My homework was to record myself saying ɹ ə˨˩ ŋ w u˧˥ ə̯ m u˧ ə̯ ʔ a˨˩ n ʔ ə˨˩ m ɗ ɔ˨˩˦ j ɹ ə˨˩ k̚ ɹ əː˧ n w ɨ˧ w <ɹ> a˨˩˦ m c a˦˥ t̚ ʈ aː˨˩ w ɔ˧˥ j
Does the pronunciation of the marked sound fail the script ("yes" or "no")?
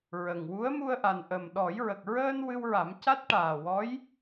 no